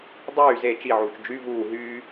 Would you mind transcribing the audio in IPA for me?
dˤyː ze t͡ʃiʕuːt͡ʃ d͡ʒy vuː ɦyː

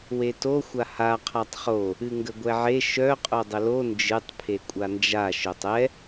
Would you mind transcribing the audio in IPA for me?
weto xʷaha qʰatˤχo | ɨŋɡəɡʷɛʕe ʃœ qʼodˤəlo nd͡ʒɨtˤ pʰekʷʼand͡ʒa ʃœtˤɛ

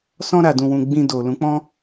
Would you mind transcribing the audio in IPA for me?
sɔ̃˧ɾa˨dũ˨wũ˨ ɡ͡bĩ˧ do˨lũ˨˦k͡pɔ̃˦

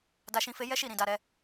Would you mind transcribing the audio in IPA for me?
da˧ʃĩ˧ fe˧jɛ˦ʃi˦˨ɾĩ˨ da˧ɾɛ˧

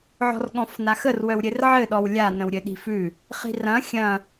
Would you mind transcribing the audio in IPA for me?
ʕɔ̤rɠɔ̃fnaxər wœwɾʲɘrʕɘ ɗɔwlʲa nə̃wɾʲɘɗi̤fʉ | χi̤rɐ̃ xʲɐ̃

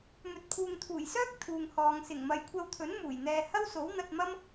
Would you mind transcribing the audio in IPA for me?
mɵ˨t̚pʰuː˨ŋt̪ʰuː˨˩jsœː˥k̚ t̪ʰuː˨ŋhɔː˨ŋ sɪ˨˩ŋmɐ˨jkʷʰɐ˧wt̪ʰɵ˨˥n muː˨˩jn̪ɛː˧ hɐ˥wso˨˥wn̪ɐ˧t̚mɐ˥m

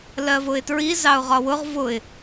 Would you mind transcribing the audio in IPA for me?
lɜvʊɪ̯tɹi zɑʊ̯ʁɒwʊʁ vʊɪ̯

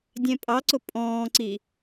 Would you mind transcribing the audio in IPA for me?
dʲɛ̃pʼɑǀʊ pʼɔ̃ːǀi

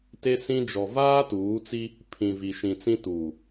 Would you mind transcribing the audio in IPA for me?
te˦sĩ˦ d͡ʒɔ˨vaː˦tuː˨˦t͡si˦ | pʰĩ˨vi˨ʃĩ˨t͡sĩ˦ tuː˨

